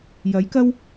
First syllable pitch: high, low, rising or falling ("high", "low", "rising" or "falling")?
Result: rising